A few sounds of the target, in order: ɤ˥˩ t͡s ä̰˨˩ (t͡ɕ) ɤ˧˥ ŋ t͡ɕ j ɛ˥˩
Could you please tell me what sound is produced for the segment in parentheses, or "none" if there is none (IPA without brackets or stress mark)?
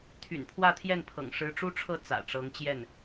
ʈ͡ʂ